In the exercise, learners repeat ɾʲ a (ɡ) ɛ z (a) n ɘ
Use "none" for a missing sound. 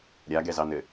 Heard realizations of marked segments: ɡ, ɑ

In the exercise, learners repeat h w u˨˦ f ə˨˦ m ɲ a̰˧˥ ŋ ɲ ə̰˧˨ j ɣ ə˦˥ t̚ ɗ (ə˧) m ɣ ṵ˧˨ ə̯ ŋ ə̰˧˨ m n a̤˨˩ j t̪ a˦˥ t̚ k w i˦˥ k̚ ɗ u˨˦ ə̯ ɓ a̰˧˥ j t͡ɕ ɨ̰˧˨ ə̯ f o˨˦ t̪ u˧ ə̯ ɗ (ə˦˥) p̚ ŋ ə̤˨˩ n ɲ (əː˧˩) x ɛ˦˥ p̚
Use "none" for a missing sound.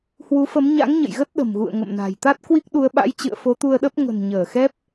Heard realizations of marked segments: ə̤˨˩, ə˦˥, əː˧˩

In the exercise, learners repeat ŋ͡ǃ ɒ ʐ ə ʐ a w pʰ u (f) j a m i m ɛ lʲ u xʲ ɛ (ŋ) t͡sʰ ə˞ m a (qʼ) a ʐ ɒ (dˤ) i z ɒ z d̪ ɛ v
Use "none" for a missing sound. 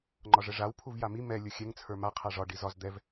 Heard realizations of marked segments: v, ŋ, qʰ, ɖ

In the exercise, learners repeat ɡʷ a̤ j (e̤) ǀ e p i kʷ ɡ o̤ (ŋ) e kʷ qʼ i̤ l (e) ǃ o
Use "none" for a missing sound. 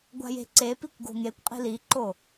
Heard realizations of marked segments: e̤, ŋ, i

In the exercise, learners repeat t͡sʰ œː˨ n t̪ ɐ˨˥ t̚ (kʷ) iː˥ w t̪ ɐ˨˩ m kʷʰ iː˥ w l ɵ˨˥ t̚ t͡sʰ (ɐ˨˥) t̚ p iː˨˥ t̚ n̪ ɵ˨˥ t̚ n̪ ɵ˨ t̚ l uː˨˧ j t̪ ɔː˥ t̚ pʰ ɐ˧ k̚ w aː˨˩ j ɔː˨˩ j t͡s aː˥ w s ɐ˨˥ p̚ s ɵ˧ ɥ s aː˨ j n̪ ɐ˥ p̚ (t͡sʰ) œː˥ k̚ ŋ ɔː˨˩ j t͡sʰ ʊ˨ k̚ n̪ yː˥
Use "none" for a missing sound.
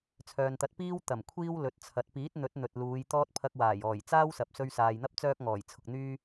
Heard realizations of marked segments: p, ɐ˨˥, t͡s

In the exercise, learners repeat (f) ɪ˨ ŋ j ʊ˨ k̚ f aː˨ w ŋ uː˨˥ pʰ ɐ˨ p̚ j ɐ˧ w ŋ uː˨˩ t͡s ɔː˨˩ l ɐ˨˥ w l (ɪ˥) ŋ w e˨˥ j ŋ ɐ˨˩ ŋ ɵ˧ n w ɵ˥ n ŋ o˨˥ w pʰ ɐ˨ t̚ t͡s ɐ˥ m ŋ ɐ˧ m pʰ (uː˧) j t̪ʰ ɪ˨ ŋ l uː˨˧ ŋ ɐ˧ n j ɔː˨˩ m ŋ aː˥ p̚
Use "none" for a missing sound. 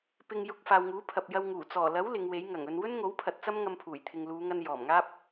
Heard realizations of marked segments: p, ɪ˨˧, uː˨˩

